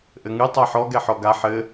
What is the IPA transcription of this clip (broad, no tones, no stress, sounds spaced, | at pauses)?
ʔ ɘ ŋ ɨ tˤ a ħ ɔ ɡ ɛ ħ ɔ ɡ a ħ ɘ